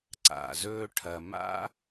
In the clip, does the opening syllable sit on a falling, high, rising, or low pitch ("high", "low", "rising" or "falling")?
low